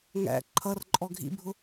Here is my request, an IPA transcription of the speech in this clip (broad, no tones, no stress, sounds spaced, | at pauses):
ŋ æ̰ ǃʰ ʌ r ǃʼ ɔ ɡʱ ḭ bʱ ʊ